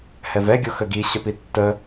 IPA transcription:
h ɛ v ɛ ɡʲ o x ə ɡ i ɕ œ p i tː ə

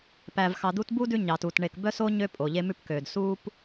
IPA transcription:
p æ˨ v x ɑ˨ d̪ u˦ t b u˥ d ʉ˦ ɲ ɑ˨ t uː˩ t ɳ e˨ k b œ˥ s o˥ ɲ ø˥ pʼ o˩ ʎ e˦ m ʉ˦ p k øː˩ d s uː˦ p

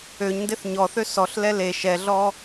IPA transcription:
ø ɲ n d e θ ɲ ɔ θ ø s ɔ ɬ l ɛ l e ʃ ɛ ɮ ɔ

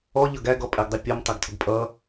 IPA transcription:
ɔ ʎ ʌ ɡ æ ɡ ɔ pʼ ɛ ɡ dˤ ɪ pʲ ɔ m tˤ ɛ ɡ tʰ ʊ ɡ pʼ ʌ

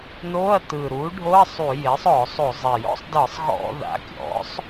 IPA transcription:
n o˧˥˧ ɐ̯ t ɯ˨˩ ɾ u˩˥ ɖʱ o˧˥˧ ɐ̯ sˤ u˧˩˧ j e˩˥ sˤ ɔ˧˩˧ sˤ o˧˩˧ zˤ ɛ˨˩ j ɔ̰˧˥˧ sˤ d ɤ˧˩˧ sˤ ɣ ɔ̰˧˩˧ ð a̰˩˥ kʲ ɔ̰˩˥ sˤ

